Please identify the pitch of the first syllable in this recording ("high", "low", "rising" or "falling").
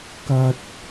high